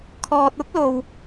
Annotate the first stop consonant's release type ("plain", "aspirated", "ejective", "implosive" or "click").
aspirated